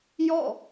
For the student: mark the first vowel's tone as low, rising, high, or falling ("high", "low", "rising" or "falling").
falling